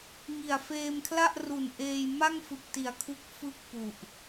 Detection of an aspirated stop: present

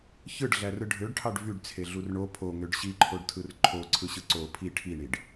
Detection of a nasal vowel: absent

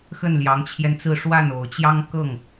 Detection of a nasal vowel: absent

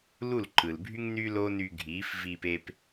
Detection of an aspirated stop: absent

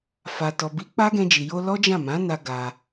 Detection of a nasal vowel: present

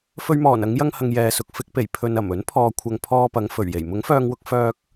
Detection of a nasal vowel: absent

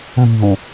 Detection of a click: absent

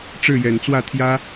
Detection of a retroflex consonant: present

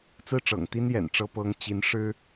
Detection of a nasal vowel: absent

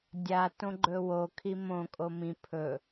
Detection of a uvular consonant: absent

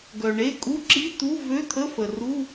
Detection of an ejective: present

